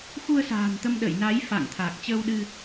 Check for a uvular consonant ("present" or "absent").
absent